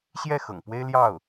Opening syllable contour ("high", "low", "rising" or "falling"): falling